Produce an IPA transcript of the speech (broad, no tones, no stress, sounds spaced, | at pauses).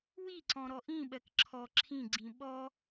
w i ǀ ɔ̃ ɾ ɔ ʔ ĩ ɓ ɜ k ǁʰ ɔ ǁʰ ĩ ɡ͡ǀ ĩ ɓ ɔ